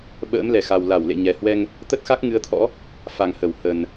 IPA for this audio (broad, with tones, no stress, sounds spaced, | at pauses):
ɓ ə̰ː˧˥ m l ɛ˧˩ x a˨˩ w l a˧˩ w l ḛ˧˨ ɲ ɛ˨˩ h w ɛ˧ ŋ | t̪ ə˦˥ t̚ x a˦˥ k̚ ŋ ɨ˨˦ ə̯ t̪ʰ ɔ̰˧˥ | f a˨˩ ŋ h ə˧˩ w h ə˨˩ n